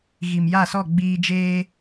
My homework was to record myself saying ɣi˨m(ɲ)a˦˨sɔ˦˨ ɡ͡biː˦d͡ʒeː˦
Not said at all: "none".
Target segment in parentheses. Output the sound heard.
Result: j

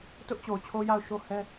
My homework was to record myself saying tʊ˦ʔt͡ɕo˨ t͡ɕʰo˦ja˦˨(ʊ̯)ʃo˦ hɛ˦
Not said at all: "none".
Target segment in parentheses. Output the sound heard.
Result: ʊ̯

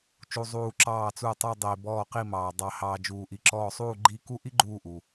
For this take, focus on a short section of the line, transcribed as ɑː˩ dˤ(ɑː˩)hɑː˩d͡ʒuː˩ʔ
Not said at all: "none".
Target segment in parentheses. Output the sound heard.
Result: ɑ˩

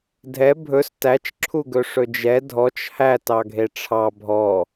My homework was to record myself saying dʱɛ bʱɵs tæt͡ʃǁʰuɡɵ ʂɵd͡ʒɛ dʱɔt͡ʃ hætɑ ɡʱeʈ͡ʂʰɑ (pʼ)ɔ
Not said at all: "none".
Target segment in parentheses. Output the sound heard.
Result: bʱ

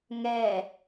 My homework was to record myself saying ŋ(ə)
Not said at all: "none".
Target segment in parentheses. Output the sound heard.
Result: ɛ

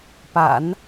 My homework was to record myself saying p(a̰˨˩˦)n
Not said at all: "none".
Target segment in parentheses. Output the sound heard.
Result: a̰˨˩˦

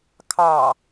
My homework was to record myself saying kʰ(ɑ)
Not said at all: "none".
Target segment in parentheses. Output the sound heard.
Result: ɑ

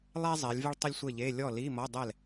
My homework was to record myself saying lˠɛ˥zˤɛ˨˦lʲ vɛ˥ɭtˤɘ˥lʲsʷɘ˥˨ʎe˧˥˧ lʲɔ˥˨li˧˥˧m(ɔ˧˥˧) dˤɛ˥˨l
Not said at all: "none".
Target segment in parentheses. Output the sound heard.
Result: ɔ˧˥˧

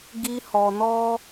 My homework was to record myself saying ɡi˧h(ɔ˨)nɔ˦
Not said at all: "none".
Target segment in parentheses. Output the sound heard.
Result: ɔ˨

